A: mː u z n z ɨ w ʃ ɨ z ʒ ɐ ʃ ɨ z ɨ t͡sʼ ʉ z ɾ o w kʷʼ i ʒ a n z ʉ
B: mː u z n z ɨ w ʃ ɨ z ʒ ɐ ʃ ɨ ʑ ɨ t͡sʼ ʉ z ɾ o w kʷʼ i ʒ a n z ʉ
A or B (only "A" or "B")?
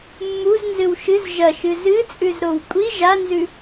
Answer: A